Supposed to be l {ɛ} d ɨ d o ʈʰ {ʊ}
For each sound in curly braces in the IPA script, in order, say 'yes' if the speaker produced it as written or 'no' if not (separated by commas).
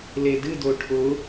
no, yes